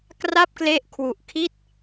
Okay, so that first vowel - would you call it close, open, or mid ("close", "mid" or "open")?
open